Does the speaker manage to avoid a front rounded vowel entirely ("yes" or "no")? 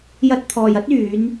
no